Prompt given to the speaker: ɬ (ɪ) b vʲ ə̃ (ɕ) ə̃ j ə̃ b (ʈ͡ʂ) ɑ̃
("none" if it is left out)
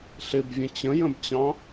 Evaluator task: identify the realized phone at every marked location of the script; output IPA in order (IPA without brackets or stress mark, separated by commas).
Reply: ɪ, t͡ɕ, t͡ɕ